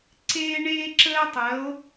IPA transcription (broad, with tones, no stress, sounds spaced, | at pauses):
ǀ eː˦ ɳ eː˦ ǁ əː˦ tˤ ɜ˨˦ o̯